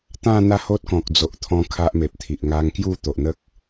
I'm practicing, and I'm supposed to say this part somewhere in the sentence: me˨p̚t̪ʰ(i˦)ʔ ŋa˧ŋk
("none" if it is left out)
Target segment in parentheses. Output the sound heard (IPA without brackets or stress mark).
i˨